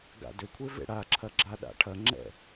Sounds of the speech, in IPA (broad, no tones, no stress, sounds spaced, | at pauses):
ɡ a̰ d ʏ kʷʰ e v ḛ ɽ a ǁʰ ɐ ɡ͡ǁ a ɗ a̰ ʈʰ ɐ ŋ͡ǁ ɛ̰